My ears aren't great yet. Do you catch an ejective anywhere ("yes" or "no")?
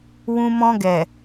no